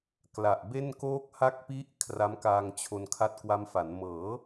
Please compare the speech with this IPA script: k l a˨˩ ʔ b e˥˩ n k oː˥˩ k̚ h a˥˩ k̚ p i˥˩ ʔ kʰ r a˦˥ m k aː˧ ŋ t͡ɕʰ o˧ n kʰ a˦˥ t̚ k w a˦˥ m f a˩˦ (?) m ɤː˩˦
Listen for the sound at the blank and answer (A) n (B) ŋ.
A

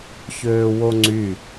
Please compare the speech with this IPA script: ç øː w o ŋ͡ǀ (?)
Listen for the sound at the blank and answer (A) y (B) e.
A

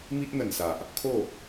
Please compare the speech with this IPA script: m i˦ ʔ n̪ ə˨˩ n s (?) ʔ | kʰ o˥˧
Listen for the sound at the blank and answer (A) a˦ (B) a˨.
B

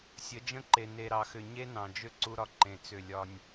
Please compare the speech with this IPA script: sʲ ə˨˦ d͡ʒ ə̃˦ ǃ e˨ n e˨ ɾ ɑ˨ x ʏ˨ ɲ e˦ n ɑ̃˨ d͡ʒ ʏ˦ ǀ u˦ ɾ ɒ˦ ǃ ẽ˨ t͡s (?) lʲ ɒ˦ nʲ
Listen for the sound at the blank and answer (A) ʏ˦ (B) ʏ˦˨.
B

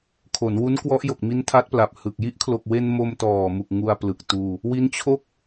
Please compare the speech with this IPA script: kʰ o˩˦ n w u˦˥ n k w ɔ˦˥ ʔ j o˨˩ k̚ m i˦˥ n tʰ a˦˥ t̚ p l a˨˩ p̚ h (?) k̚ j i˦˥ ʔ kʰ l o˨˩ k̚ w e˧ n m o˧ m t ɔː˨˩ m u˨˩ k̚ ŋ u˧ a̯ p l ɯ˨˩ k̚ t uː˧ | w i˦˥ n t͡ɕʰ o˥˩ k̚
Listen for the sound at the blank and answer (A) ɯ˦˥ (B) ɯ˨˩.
B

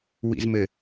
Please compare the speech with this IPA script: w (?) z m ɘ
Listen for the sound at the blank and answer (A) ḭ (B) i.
A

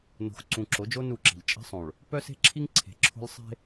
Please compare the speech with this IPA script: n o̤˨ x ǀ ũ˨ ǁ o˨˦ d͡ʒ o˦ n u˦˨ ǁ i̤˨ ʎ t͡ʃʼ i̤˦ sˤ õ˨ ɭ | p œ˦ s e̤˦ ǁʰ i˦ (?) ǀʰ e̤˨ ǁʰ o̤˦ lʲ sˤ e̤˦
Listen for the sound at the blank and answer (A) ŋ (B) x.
A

